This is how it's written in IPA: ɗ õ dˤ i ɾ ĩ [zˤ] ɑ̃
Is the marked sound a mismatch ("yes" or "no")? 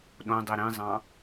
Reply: no